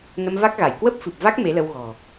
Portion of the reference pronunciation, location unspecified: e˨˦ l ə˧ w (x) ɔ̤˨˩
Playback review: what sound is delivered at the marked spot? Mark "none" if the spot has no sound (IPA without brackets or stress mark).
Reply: ɣ